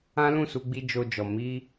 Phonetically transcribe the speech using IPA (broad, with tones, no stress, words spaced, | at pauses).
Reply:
ã˦lũ˦˨ su˧ɡ͡bi˧ d͡ʒo˧d͡ʒɔ˨ mi˧